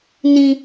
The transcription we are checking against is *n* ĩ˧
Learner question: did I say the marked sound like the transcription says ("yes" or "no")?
yes